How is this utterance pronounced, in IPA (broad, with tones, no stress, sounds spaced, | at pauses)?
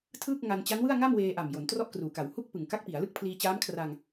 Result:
tʰ ɯː˥˩ k̚ ŋ a˧ n t͡ɕ a˦˥ n w ɯ˥˩ a̯ ŋ a˥˩ m w eː˧ ʔ a˨˩ m j o˩˦ n t r ɔ˥˩ ʔ k r uː˨˩ k a˩˦ w h u˥˩ k̚ p ɯ˨˩ ŋ k a˦˥ k̚ p i˩˦ a̯ l ɯ˥˩ k̚ pʰ l iː˧ t͡ɕ aː˦˥ m kʰ r a˧ ŋ